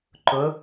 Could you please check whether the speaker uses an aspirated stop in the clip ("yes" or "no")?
no